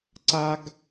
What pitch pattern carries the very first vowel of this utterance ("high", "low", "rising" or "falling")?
high